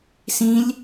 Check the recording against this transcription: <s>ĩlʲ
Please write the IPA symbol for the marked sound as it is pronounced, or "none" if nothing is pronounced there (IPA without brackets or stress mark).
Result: s